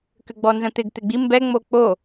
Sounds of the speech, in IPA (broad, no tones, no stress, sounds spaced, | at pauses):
k ʏ ɡ͡b ɔ n z ə̃ t̪ ɪ ɡ t̪ ɪ ɡ͡b i m b ɛ ŋ͡m o k͡p o